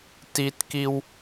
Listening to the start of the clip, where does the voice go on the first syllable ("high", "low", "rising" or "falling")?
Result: high